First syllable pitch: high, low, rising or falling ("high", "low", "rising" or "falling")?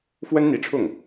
high